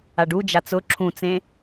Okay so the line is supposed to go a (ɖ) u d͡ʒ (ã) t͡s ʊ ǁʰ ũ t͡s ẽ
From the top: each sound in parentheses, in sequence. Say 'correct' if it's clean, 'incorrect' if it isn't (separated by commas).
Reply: correct, incorrect